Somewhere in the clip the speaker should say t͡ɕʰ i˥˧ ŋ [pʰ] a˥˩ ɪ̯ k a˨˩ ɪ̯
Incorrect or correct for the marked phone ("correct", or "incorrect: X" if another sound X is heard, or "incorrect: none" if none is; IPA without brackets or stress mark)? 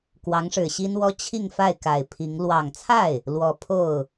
incorrect: f